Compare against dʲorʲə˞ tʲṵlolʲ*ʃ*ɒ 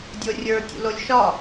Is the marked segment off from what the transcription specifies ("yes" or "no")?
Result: no